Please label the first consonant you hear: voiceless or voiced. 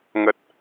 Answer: voiced